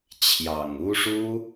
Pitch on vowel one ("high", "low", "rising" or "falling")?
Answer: low